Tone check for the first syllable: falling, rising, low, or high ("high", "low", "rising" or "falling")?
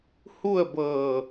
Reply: falling